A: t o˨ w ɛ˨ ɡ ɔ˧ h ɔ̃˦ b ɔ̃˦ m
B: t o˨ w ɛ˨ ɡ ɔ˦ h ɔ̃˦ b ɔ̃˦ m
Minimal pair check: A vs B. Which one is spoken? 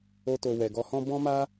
A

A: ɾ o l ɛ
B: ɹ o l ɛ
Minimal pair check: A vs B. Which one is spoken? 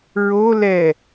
B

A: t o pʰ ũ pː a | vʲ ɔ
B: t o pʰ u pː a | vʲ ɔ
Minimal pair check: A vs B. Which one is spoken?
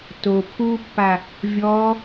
B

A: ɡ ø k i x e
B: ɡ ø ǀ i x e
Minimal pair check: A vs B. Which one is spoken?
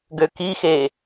A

